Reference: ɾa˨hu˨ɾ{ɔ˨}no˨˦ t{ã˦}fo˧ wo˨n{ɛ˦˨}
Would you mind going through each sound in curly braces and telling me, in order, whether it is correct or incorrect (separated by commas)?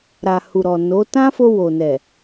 correct, correct, incorrect